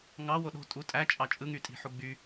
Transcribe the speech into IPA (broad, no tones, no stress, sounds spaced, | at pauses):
ŋ ɑ w o ɗ o̤ tʼ u tʼ æ t͡ʃʼ ɑ t͡ʃʼ ɯ ŋ y tʼ i̤ ħ u ɡ͡b y